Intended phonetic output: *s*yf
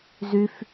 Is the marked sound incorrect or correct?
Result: incorrect: z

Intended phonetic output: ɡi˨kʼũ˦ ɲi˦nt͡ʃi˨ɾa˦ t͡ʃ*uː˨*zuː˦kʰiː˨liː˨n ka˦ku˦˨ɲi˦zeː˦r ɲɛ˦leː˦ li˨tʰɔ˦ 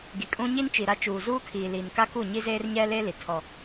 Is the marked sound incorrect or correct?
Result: correct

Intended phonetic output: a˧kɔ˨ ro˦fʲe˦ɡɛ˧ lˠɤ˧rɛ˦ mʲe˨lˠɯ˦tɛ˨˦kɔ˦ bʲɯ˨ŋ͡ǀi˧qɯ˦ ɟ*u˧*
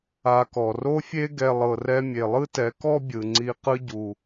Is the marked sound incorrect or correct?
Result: correct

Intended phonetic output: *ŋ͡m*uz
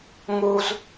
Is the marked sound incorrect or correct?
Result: incorrect: ŋ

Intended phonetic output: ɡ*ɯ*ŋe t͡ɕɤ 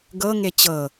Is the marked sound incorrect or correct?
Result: incorrect: ɤ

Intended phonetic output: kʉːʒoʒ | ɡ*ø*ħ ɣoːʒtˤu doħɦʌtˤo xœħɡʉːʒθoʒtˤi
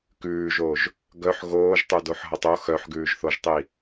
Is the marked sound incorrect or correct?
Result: incorrect: œ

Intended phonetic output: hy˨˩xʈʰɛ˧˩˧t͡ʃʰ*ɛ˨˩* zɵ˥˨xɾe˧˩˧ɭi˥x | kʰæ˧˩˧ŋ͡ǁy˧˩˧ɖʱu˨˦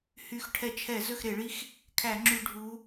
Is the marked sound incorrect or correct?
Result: incorrect: ɛ˧˩˧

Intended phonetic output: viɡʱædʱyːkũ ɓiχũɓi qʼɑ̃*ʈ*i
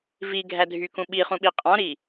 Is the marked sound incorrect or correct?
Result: incorrect: ɾ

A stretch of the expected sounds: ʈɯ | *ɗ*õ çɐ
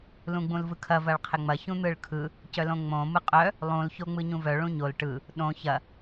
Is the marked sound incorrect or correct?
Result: correct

